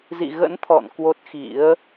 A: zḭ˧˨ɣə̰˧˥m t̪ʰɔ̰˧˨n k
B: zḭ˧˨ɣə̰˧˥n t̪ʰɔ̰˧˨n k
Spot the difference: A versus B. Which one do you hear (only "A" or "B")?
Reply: B